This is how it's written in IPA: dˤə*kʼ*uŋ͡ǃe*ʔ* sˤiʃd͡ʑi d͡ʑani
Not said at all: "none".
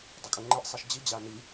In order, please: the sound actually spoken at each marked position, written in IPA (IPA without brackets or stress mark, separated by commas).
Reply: kʼ, ʔ